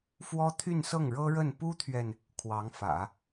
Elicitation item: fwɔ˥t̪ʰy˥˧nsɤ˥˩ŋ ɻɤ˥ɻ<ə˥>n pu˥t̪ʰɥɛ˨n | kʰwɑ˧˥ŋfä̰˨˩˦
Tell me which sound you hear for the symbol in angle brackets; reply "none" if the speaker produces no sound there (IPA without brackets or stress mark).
ə˥˩